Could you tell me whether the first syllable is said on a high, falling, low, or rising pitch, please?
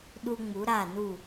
high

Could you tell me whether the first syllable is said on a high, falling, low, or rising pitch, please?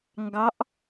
rising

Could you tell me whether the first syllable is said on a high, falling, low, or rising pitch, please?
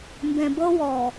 low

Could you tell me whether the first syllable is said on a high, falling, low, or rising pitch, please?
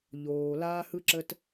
low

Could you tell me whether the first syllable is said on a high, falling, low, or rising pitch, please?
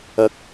rising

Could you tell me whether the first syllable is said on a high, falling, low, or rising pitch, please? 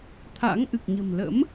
rising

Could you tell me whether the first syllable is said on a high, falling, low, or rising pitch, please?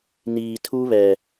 low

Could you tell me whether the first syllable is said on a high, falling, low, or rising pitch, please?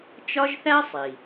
high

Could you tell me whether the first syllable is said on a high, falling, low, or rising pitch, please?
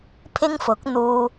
high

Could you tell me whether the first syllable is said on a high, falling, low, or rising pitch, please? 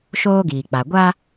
high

